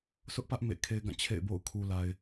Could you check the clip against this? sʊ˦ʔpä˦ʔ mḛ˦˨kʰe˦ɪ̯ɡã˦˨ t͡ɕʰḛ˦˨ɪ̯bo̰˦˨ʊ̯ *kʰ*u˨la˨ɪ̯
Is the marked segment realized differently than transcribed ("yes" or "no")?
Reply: no